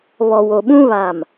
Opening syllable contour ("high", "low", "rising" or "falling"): low